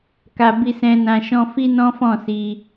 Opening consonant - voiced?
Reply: no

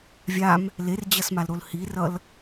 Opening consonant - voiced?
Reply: yes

